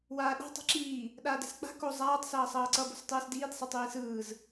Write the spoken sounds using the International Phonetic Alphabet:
waːɗa̤ tˤe̤ǁiː | ɗaːdɛ̤sk͡pa̤ ko zˤaːtˤ sʌːsˤʌːǀʌ bo̤stˤɯːsdiːd sˤɛtˤiːsɯːz

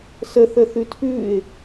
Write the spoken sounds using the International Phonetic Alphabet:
səθə θʉtʰʉːɪ̯

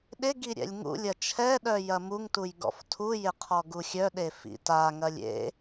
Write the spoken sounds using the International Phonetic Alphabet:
ɗɪ ɡiɾʲɛ̰lʲŋṵlʲɐ t͡ʃʰɛɗœ jɐmuŋtuj ɡɔ̰ftʰujɪ qʰɔɡuxʲœɗe fḭtaŋɐlʲ ḛ

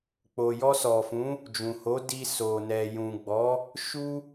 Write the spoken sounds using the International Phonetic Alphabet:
k͡po˨ jɔ˧sɔ˨fũ˨˦ | d͡ʒũ˨ho˨˦ di˧ so˨nɛ˨ jũ˨ɡ͡bɔ˨˦ | ʃu˦

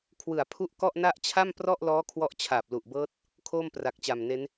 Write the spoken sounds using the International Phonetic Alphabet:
kʰwɯ˨˩a̯pʰu˦˥ʔkɔ˥˩ʔ na˥˩ʔ t͡ɕʰa˥˩mprɔ˥˩ʔlɔː˦˥ kʰwɔ˦˥ʔt͡ɕʰaː˨˩p̚lu˨˩ʔbɤː˦˥t̚ | kʰoː˥˩mpra˨˩k̚t͡ɕa˨˩mne˦˥n

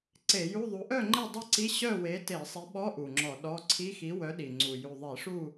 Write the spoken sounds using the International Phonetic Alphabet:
ǀe˧˩˧ju˧˥˧ðˤu˨˥ ʔœ˥˨ŋ͡ǃe˥˨dˤe˥˨ǀi˧˥˧ ɕœ˥˨we˨˥ te˧˩˧sˤi˨˥ɓɔ˧˥˧ ʔu˨˩ŋ͡ǁɔ˧˩˧ɗɔ˧˥˧ ǀʰi˧˥˧xi˨˥wœ˨˥ ɗi˨˩ŋ͡ǀu˨˩ ju˨˩ðˤi˧˩˧ʂu˥˨

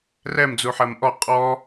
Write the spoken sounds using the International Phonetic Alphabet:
rɛm d͡zuħɜmʔɔ qʼɔ

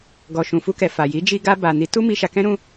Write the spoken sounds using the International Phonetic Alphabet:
ɡɔ˨ ʃũ˨fu˧kɛ˨ fa˨ji˨˦ d͡ʒi˧ɡa˧ ba˨ni˨˦tu˦ mi˧ʃa˧kɛ̃˦ ɾũ˦

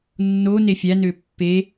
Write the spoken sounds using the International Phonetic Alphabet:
nːone fʲænø pːe

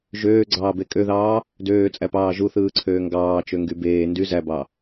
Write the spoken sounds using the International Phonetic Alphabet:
ʒøːɡ͡ǀɑːbe kʼøðɑː | døːt͡sʼæpɑː ʒuθɯːǀʰøː ŋɡɑːt͡ʃøŋɡy beː ndy zæbɑ

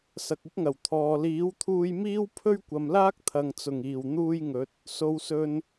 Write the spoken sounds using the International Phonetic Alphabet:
sɐ˨k̚ɪ˥k̚ŋɐ˨˩w t̪ʰɔː˨ liː˨˥wt̪ʰuː˧jmiː˥w pʰɵ˥ɥkʷɐ˨mlaː˥k̚ t̪ʰɐ˨ŋt͡sʊ˨˩ŋiː˨˩wn̪uː˧j ŋɵ˨˥t̚ | so˨wsɵ˨n

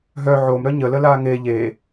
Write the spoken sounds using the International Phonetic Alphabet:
ɦœ ʕomɾœ ɲələ laŋe ʎe

